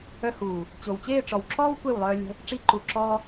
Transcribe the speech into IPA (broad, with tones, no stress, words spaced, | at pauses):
œ˧huː˨ | t͡ɕo˨wt͡ɕeː˦˨ʈ͡ʂɔ˨wǁɔː˦w kʷe˦˨wlˠœː˧ lʲə̤˦ | ʈ͡ʂi˧ǃu˨ǁɔː˧